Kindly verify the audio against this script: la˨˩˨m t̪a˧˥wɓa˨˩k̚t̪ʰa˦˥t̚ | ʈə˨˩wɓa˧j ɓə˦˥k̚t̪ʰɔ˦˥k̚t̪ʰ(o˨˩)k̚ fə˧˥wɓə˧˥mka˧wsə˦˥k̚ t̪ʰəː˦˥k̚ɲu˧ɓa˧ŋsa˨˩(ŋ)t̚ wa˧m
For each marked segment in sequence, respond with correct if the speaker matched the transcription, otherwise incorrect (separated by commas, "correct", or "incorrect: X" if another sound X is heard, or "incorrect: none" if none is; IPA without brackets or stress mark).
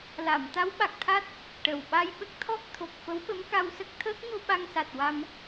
correct, incorrect: none